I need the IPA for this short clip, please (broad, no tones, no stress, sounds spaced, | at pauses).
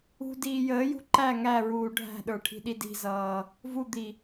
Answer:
ṳ d iː j əː j ṳ ǃ æ ŋ æ ɹ uː ɖʱ æ̤ ɗ ə˞ ʈʰ i̤ ɗ i d i̤ z ʌː | v u d̪ i